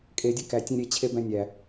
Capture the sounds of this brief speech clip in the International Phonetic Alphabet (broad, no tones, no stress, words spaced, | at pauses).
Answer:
kʼedʲe kætʲẽ ɾʲet͡ɕʰebæ̃ nʲæ